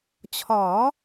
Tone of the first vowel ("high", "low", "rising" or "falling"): rising